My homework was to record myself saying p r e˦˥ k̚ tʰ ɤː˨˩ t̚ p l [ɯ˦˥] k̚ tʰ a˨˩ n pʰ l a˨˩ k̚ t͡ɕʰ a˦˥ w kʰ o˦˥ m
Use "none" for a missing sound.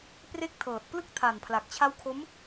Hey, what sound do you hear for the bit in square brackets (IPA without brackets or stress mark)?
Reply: ɯ˦˥